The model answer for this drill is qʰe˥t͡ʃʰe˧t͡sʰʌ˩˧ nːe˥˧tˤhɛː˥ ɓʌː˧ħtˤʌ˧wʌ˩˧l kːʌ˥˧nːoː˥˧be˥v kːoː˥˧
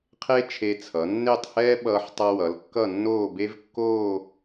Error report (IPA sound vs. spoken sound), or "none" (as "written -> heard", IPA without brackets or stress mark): none